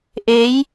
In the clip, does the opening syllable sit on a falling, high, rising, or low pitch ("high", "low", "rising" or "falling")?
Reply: rising